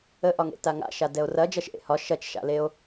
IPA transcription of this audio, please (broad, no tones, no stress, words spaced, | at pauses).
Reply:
əʔɒŋḛ taŋa̰ʃa dɛo̯rɐ d͡ʒɐʃʔḛhɒ ʃɐt͡ʃʃa̰leo̯